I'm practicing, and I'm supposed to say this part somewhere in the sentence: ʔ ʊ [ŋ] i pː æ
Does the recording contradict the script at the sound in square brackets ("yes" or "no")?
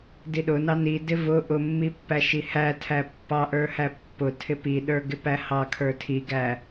yes